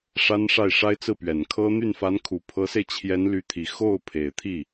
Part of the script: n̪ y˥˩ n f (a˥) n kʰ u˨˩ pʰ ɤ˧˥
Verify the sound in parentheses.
incorrect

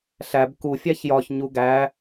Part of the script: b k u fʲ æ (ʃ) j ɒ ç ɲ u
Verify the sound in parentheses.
incorrect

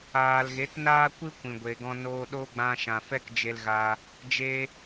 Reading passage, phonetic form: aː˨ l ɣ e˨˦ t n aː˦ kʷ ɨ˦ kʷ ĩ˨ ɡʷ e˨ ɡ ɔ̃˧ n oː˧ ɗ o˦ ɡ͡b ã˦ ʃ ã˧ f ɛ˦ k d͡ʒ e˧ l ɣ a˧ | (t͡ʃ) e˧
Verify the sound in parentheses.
incorrect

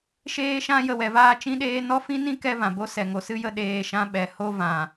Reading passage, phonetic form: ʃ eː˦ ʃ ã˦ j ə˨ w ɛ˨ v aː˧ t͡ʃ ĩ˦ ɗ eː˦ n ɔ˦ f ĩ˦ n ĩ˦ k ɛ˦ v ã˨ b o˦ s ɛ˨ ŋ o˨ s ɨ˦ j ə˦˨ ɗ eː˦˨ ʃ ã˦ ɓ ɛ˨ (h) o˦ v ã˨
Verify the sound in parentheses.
correct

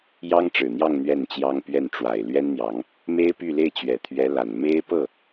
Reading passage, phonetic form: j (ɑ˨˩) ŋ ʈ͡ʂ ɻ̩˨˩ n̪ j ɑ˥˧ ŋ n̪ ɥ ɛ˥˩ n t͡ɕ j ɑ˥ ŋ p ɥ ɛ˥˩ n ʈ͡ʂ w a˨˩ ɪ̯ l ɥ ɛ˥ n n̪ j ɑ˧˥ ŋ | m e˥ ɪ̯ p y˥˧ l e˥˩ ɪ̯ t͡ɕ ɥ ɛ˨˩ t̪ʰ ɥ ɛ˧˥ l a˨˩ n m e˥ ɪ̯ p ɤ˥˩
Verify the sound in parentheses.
incorrect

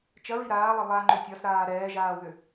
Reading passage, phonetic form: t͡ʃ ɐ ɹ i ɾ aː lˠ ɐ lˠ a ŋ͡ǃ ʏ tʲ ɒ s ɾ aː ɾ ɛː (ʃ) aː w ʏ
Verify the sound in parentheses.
incorrect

